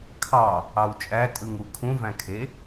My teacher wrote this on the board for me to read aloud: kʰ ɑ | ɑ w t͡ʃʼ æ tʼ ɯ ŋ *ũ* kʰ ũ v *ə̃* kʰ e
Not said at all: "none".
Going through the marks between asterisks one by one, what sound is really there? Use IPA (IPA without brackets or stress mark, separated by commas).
u, æ̃